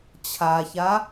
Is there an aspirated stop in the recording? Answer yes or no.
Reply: yes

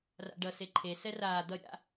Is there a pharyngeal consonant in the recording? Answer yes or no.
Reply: no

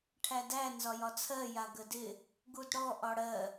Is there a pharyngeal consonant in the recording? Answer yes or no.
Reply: no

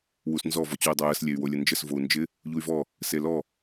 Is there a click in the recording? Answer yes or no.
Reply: no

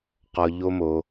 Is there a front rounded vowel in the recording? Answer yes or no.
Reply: no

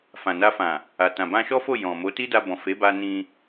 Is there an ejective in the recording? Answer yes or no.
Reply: no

